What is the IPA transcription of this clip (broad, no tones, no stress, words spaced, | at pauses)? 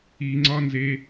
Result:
iŋ͡ǀɒnze